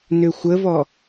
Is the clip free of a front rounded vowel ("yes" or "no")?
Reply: no